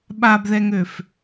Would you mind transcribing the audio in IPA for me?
ɓ a b ð ɛ ŋ ø f

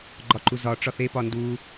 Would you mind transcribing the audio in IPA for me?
ɡ͡ǃ ɒ ǃ u z ɒ ʈ͡ʂ ɒ θ e p ɒ n d u

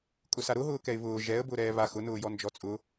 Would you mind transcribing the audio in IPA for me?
kʼ ʊ s a ɾ ʊ ɦ ʊː k ɛ ɪ̯ β ʊː ʒ ɛ ə̯ b ʊː ɾ ɛː β a x ʊ n ʊː j ɔ n d͡ʒ ɔ t͡sʼ ʊ

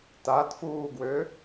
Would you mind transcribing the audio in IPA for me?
t a t f uː ɡ w ø

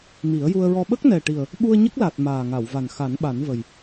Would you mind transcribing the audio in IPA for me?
m i˨˩˦ ə̯ j u˧ ə̯ ɹ ɔ˧ ɓ ə˦˥ k̚ n ɛ˨˩ ʈ i˨˩ ə̯ | ɓ u˧ ə̯ ɲ ə˦˥ k̚ l a˨˩ t̚ m aː˨˩ ŋ a˨˩˨ w v a˨˩ n x a˨˩˦ n ɓ a˨˩˦ n v ə˨˩ j

